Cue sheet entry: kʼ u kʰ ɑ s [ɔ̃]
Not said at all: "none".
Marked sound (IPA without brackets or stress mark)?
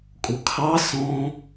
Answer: ɔ̃